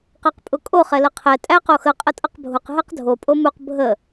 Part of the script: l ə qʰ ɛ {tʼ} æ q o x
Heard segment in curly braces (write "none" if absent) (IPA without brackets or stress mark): tʼ